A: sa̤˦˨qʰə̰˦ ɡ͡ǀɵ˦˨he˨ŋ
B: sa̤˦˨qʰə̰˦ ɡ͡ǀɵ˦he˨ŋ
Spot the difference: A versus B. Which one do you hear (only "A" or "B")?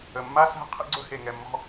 B